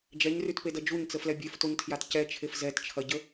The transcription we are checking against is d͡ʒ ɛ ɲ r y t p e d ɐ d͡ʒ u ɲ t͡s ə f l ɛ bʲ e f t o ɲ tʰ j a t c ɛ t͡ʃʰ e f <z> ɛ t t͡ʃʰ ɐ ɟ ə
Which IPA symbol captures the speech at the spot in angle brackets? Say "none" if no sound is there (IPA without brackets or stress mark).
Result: z